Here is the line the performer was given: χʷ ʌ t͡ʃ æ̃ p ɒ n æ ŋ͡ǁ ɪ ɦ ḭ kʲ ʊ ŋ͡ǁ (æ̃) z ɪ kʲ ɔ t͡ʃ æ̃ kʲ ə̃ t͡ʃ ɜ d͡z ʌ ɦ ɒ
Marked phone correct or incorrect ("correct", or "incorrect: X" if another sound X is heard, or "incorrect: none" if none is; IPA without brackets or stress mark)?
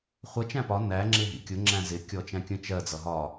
correct